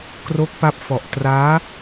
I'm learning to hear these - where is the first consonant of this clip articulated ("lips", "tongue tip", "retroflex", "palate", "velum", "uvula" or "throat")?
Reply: velum